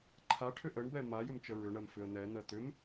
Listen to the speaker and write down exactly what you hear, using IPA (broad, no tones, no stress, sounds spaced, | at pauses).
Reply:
ǃʰ a ʈʰ ʏ ʔ ə ɳ b ɛ m a j ʏ m t͡ʃ ə ɹ ʏ ɳ ɜ m f ʏ ə̯ n̪ ɛ n̪ ɜ t̪ ʏ m